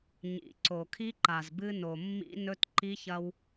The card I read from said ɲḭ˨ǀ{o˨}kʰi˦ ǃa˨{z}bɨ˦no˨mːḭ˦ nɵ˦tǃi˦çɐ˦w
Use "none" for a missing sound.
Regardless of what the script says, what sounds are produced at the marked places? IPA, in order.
o˨, z

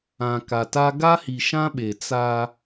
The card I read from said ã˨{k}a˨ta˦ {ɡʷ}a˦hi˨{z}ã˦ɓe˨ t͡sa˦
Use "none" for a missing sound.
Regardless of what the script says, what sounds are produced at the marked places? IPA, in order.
k, ɡ, ʃ

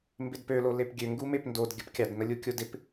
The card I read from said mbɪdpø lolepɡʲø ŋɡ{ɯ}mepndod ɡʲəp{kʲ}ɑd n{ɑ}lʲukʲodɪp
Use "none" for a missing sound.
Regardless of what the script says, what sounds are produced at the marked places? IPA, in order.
u, kʲ, ə

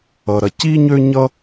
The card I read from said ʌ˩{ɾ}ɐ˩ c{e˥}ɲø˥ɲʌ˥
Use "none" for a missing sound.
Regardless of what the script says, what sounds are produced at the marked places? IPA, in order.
ɾ, i˥

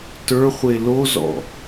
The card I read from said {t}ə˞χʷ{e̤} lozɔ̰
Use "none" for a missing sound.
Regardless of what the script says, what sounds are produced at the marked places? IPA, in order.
t, e

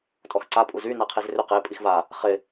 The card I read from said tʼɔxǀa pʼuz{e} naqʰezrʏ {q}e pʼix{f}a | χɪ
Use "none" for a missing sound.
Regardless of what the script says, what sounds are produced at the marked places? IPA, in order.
y, q, v

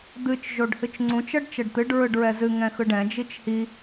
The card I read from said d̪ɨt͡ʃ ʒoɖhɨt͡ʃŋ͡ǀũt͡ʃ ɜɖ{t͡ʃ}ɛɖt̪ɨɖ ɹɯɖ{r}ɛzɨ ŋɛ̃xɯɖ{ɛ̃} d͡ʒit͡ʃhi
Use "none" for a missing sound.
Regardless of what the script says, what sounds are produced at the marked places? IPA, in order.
t͡ʃ, ɹ, ɛ̃

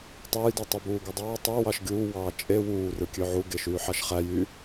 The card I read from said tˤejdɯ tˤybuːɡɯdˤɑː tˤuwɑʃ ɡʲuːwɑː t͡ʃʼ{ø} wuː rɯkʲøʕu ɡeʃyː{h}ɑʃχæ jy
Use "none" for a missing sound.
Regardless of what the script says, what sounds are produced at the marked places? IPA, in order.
e, ħ

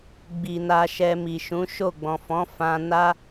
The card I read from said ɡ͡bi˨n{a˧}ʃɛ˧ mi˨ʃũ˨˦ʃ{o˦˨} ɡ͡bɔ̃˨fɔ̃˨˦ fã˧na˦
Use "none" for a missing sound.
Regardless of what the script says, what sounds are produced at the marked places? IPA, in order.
a˧, o˦˨

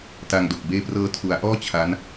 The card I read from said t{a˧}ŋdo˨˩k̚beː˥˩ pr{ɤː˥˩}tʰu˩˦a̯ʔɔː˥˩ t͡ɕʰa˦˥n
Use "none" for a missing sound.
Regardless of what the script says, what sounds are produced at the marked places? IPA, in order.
a˧, ɤː˧

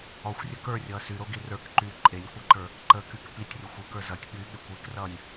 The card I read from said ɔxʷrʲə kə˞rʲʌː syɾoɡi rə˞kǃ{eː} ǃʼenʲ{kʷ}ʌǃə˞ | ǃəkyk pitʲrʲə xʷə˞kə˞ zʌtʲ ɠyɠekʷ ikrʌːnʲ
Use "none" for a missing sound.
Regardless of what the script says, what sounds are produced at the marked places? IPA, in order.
yː, kʷ

